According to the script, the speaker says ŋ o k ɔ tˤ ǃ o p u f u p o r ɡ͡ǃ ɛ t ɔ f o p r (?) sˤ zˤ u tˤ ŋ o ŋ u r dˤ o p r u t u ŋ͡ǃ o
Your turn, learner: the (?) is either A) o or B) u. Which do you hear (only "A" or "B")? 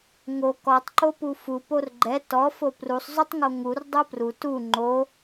B